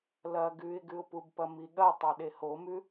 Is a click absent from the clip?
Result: yes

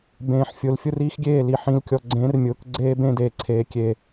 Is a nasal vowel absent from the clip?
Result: no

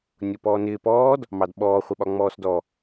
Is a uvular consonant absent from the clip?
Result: no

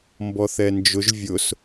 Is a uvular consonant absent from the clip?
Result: yes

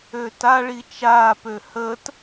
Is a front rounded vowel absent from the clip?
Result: no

